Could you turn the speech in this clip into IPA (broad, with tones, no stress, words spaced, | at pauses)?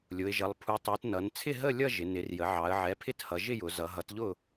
lʲʊ˩˧ɪ̯ʒʌ˩˧lˠ pʰu˩˧tˤu˩˧tnʌ˩˧n t͡sʰɪ˥˨ɦə˥˨lʲʌ˥˨ ʒɪ˩˧nɪ˩˥rjə˩˥ ʕɑ˩˧ə̯ʕɛ˩˥pʰɪ˥˨thʌ˩˧ ʒɪ˥˨jʊ˩˧ zʌ˩˧ɦʌ˩˥tʎʊ˥˨